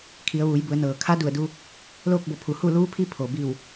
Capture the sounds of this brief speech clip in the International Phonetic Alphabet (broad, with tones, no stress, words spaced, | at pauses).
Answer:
kʰi˩˧ə̯ʋuː˩˧jbu˩˧ə̯ nɤː˩kʰa˧˥du˧˩ə̯du˧ | loː˥˨k̚bo˧˩pʰu˩˧ hu˥˨ luː˧˥pʰi˧˥ pʰo˩bi˧˩w